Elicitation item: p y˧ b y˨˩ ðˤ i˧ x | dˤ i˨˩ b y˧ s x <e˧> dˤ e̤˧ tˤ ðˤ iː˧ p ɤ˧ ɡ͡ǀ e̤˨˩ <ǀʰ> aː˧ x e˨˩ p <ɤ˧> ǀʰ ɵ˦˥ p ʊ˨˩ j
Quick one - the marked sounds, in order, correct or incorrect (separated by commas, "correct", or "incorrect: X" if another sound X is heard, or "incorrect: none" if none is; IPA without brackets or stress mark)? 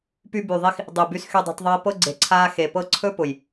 incorrect: y˧, correct, correct